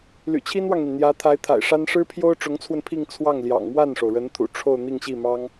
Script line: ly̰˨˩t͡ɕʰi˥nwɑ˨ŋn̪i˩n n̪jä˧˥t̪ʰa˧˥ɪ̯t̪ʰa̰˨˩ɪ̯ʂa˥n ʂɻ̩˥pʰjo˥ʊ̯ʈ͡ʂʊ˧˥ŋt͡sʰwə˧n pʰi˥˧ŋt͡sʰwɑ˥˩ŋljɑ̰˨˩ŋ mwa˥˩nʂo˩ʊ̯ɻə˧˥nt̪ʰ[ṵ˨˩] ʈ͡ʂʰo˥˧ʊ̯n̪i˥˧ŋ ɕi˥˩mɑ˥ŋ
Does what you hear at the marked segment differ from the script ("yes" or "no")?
no